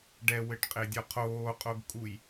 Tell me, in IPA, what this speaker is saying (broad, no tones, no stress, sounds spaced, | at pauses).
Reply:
ɖ ɛ w ɘ ʈ qʼ e dʲ ɔ qʰ oː qʼ o ɡ kʼ u j